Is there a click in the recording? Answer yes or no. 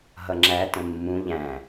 yes